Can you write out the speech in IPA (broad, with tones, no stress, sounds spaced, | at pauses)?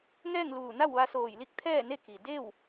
ŋ ɛː˥˨ ŋ l uː˧˩ n a˥˨ w ʋ a˧ s oː˧˩ j l i˥˨ k̚ t̪ʰ ɛː˥˨ n e˥˨ k i˩ d e˥˨ w